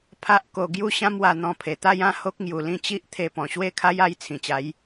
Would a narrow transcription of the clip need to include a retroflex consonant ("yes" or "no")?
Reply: no